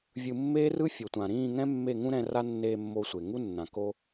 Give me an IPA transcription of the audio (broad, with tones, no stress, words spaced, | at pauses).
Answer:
vʲɯ˧mːeː˦rɯ˦ fʲo˨tʷã˨ɾĩː˦˨ ŋɛ̃˦mːe˦˨ŋũ˦ ɾɛ̃˧ ra˦nːeː˧ mːo˧sʷe˨ ŋu˦nːã˨ ko˧